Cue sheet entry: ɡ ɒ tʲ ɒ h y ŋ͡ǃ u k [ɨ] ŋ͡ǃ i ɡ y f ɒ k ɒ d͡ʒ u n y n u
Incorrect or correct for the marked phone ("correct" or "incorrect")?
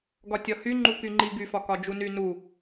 incorrect